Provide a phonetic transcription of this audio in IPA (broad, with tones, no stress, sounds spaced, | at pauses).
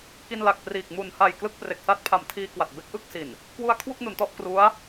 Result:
k i˧ n l a˨˩ k̚ p r iː˨˩ k̚ m u˨˩ n h a˨˩ j k l ɯ˥˩ k̚ p r e˨˩ k̚ s a˥˩ t̚ pʰ a˨˩ m tʰ iː˧ k w a˨˩ t̚ b e˦˥ k̚ ʔ ɯ˥˩ k̚ s i˨˩ n | k w u˧ a̯ kʰ w u˥˩ k̚ n u˩˦ n t ɔ˥˩ ʔ k r u˦˥ a̯